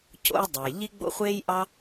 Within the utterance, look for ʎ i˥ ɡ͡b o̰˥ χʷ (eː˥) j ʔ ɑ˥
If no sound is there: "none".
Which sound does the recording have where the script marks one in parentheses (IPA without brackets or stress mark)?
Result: eː˥